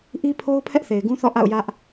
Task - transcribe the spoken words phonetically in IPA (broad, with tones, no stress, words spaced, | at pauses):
ʔi˦pʰo˦ʊ̯ pʰɛ˦ʔθe˨ɪ̯ɡũ˦ θɔ̰˦˨ʔa̰˦˨ʊ̯ jä˦ʔ